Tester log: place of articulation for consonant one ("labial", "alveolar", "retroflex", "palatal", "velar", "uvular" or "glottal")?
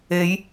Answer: palatal